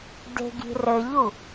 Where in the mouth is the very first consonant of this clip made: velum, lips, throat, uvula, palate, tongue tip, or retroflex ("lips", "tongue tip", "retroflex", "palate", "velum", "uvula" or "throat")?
tongue tip